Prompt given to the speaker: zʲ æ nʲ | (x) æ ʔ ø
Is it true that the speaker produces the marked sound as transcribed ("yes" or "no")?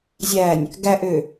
no